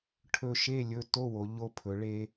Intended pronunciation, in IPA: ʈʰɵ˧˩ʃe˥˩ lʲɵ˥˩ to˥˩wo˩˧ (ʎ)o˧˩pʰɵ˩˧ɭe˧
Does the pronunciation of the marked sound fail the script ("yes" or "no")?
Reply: no